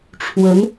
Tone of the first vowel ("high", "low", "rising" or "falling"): rising